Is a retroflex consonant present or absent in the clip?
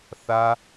absent